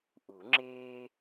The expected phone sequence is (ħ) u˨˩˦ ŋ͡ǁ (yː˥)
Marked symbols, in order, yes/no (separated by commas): no, no